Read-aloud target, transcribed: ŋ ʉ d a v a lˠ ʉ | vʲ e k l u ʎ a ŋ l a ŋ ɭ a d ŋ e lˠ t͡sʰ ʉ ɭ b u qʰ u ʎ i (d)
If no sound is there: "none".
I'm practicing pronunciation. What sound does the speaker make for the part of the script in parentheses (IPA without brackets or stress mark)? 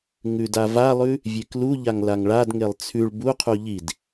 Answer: d